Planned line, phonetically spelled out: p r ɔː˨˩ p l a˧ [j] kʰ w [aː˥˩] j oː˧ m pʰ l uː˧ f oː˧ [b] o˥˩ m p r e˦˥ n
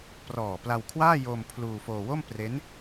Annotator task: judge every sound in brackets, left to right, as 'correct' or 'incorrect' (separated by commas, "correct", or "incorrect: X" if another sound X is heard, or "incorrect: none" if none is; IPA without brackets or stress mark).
incorrect: w, correct, incorrect: w